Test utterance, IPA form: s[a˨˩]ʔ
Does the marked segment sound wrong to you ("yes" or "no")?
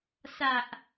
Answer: no